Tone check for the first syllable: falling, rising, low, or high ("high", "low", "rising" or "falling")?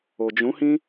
low